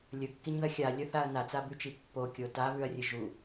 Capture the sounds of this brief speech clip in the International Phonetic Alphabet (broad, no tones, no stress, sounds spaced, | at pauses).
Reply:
lʲ ɵ kː i ɲ ð ɐ xʲ a lʲ ɵ θ a ɐ̯ n a t͡s a b ʉ t͡ʃ i pː o kʲ o t a β ʉ ɐ̯ rʲ ɨ ʒ u